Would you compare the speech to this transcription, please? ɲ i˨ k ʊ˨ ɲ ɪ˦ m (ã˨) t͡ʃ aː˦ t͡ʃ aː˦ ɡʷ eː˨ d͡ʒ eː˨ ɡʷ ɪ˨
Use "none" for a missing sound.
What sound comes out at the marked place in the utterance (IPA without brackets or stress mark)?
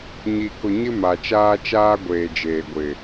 a˨